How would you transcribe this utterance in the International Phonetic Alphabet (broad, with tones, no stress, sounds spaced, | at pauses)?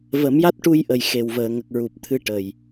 v ə˨˩˦ m j a˦˥ t̚ ʈ u˧ j ʔ ə˨˩ j x e˨˩ w v əː˨˩˨ ŋ ə˨˩ k̚ ɹ u˨˩ p̚ t̪ʰ ɨ˧ ʈ ə˨˩ j